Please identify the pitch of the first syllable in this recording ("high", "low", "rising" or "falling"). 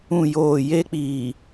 falling